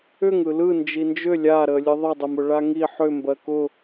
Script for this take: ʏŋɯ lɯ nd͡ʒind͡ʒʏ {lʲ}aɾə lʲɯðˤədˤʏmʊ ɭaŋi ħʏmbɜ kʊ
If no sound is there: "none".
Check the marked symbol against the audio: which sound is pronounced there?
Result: lʲ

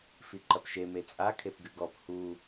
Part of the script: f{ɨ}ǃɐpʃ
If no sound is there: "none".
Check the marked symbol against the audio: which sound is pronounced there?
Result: i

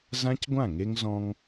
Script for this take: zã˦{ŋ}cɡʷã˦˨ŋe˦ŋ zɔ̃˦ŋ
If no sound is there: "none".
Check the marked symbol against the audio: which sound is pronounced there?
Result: none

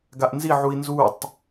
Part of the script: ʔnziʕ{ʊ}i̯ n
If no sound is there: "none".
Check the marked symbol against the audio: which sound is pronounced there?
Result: u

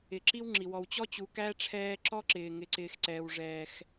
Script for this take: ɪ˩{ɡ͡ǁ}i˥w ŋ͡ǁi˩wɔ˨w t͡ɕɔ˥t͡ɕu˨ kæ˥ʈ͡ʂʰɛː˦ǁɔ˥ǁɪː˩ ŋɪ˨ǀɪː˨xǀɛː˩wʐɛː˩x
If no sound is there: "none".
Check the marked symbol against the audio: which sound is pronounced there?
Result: ǁ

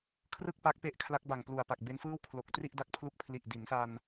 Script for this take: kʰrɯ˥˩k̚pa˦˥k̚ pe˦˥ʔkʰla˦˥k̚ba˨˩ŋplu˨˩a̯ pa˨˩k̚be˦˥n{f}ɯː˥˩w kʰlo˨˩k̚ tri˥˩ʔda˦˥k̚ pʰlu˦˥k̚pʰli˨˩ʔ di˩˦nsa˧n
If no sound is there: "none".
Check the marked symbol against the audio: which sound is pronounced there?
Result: f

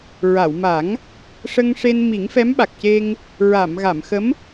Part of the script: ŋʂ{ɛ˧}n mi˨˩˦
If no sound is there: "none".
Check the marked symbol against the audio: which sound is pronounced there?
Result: e˧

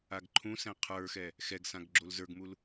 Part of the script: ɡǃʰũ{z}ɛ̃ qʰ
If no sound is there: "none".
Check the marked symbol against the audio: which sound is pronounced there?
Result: s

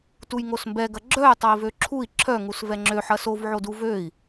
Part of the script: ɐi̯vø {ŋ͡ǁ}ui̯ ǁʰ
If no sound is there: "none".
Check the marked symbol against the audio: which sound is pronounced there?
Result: ǁʰ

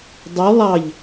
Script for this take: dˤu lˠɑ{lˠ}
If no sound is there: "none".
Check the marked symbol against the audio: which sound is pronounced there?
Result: ʎ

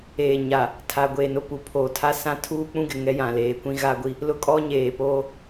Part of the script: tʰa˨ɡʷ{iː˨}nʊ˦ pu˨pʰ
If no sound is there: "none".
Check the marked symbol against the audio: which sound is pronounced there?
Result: eː˨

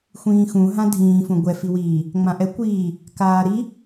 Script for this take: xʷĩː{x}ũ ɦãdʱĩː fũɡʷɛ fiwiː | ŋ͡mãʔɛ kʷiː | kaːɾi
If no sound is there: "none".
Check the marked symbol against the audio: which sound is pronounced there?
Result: x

